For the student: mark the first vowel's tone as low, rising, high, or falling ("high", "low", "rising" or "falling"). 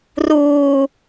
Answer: low